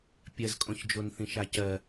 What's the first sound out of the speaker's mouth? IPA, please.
pʲ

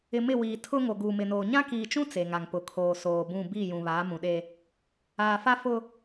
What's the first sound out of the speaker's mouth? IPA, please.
ɪ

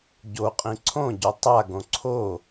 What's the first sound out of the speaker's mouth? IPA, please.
ɟ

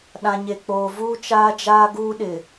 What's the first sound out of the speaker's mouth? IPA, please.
ɗ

